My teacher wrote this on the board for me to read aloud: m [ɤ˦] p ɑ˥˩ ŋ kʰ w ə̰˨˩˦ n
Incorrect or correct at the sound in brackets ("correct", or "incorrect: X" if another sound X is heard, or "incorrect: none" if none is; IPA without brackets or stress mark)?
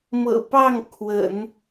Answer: incorrect: ɤ̰˨˩